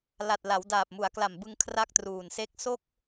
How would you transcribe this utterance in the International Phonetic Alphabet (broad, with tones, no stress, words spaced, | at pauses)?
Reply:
la˨˩t̚la˩˦w daː˨˩p̚mu˩˦a̯kla˨˩mbɯ˧ŋ kʰra˥˩k̚truː˨˩nse˥˩k̚ so˥˩k̚